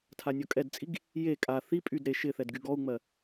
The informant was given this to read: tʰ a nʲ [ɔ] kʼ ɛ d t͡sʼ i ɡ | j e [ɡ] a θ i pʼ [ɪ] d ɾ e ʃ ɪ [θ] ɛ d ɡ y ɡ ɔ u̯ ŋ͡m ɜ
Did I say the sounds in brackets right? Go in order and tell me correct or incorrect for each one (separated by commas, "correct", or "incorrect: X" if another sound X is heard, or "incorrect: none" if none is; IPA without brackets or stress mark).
correct, incorrect: kʼ, incorrect: y, correct